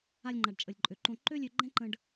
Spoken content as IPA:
a˧lʲŋ͡ǃa˨ɖ t͡ʃʼə˨lʲǃʼø˨ǃõ˧ ǃø˦lʲø˧ ɡ͡ǃɛ̃˦ǃə̃˧ɖ

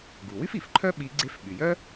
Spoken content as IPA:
ɡu˩wy˥fi˩fǃʰœ˥ ɓi˧˥ɡ͡ǀe˥f ɓy˩jœ˥

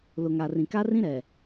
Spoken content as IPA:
lʊ˨ŋa˨rĩ˨ ka˦rĩ˦ ɾɛ˨

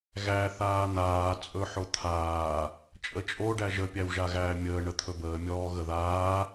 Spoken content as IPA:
ɣæ θaːn̪aː t͡sʼɵħot̪ʰaː | t͡ʃʼət͡ʃʼo ɖæʒə pʲæwʒaɣæːmʲəː ɳət̪ʰɵbəː mʲɔːɣəðaː

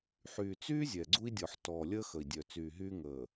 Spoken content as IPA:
ħyː˨t͡syː˦ zʲɛ˨ɡ͡ǀu˦i̯dʲɔ˨ħ tɔː˨lʲəː˦ xə˨i̯dʲœ˨t͡syː˨ɦyː˦ ŋəː˨

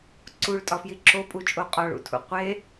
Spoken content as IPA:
ǀuɭtʼɒfji ǁopʼut͡ʃʼo qʼɒɭṵtʰṵ qʷe

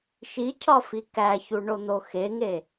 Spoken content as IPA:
ʃicʰɒfi kæçuɳon̪o xeŋe

